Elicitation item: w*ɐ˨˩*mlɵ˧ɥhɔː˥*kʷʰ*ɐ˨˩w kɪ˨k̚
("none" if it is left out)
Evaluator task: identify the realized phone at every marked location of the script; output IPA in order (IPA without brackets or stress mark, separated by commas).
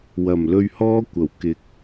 ɐ˨˩, kʷ